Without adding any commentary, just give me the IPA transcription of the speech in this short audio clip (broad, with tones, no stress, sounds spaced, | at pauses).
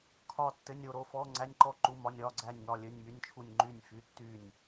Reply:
kʰ ɒ˥˨ tː ɘ˧˥˧ nʲ o˥˨ ɾ o˧˥˧ f ɔ˧˥˧ ŋ͡ǀ æ˧˥˧ nʲ ǃ ɔ˥˨ ǃ u˧˥˧ m ɒ˧˥˧ nʲ ɒ˧˥˧ ɡ͡ǀ æ˥˨ nʲ ŋ ɒ˥˨ lʲ ɘ˧˥˧ nʲ m y˧˥˧ nʲ t͡ʃʰ u˥˨ nʲ ŋ͡ǃ y˥˨ nʲ f y˧˥˧ tː y˥˨ nʲ